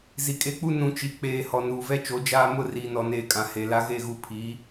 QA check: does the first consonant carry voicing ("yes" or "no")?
yes